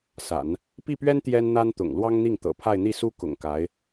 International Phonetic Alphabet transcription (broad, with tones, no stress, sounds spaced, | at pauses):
s a̰˨˩˦ n | p i˥˩ p ɥ ɛ˥ n t̪ j ɛ˥ n n̪ a˥ n t̪ ʊ̰˨˩ ŋ l w ɑ˥ ŋ n̪ i˥˩ ŋ t̪ ɤ̰˨˩ pʰ a˥˧ ɪ̯ n̪ i˥˩ s u˥ k ʊ̰˨˩ ŋ k a˧˥ ɪ̯